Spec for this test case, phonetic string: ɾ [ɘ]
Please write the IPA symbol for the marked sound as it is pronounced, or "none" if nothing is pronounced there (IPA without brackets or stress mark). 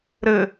ɘ